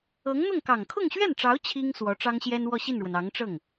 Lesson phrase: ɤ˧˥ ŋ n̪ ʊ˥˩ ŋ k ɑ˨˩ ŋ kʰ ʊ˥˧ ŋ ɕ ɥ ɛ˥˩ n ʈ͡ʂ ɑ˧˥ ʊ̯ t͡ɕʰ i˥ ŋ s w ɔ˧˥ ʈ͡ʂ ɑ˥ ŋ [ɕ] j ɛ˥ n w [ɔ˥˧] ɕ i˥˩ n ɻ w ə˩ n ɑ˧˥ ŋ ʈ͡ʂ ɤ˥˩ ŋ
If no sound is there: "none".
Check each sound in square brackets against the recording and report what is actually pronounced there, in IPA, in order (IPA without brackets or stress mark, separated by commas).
ɕ, ɔ˥˧